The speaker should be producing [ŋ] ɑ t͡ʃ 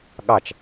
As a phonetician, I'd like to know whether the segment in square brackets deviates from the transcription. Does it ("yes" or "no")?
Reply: yes